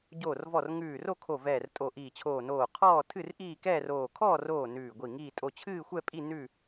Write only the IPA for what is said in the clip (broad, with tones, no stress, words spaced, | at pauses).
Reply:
ɟoː˧˩rvɔ˧˩r ŋʉː˧˩ ro˥˨kʰo˧˩ vɛː˧˩rtʼo˧˩ʔiː˧˩t͡ɕʰoː˧˩ noː˧˩qʰɔː˥˨ tʰɨ˥˨rʔiː˥˨ kɛː˥˨roː˧˩ kʰɔː˥˨roː˧˩ nʉː˧˩ɡʷi˧˩ŋiː˥˨ tʼo˧˩t͡ɕʰɨː˥˨xʷɛ˥˨pʼi˥˨ nʉ˥˨